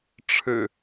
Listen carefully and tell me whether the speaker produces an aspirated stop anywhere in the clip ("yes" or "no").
yes